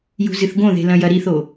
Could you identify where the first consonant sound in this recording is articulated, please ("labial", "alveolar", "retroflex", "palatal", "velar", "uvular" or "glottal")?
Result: palatal